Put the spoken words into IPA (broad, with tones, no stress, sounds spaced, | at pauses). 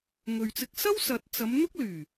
ŋ ɵ˨ ɥ t͡s ɪ˧ k̚ s ɐ˥ w s ɐ˨˥ t̚ t͡s ɐ˨˧ m n̪ ʊ˥ k̚ l yː˨˩